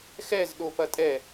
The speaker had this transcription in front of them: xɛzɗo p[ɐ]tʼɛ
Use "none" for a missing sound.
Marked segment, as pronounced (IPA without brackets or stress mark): ɐ